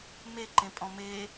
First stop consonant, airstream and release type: click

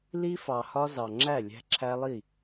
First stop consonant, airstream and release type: click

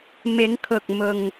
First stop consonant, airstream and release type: aspirated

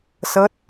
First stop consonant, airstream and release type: plain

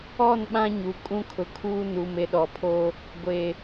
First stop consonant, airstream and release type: implosive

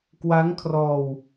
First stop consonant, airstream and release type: plain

